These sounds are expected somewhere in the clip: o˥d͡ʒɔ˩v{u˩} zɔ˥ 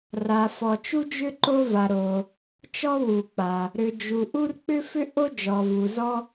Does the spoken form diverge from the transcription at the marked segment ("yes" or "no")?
no